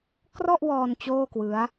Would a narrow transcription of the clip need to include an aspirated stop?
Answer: no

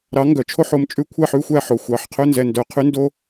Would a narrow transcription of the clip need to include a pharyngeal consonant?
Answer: yes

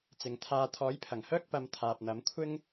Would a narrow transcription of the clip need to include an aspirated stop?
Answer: yes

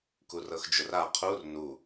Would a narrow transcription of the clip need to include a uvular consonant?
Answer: yes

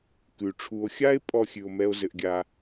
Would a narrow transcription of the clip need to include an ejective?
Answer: yes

